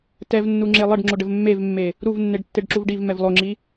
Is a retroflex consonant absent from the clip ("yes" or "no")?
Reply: no